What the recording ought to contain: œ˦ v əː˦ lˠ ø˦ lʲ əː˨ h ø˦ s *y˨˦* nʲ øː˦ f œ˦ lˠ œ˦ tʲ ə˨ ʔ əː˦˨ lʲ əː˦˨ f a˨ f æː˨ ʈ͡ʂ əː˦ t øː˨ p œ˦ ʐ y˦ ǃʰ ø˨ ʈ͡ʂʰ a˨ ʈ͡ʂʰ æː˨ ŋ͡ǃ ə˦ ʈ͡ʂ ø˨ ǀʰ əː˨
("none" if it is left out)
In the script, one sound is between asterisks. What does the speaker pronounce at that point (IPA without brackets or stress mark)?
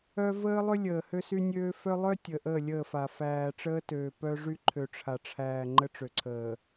y˦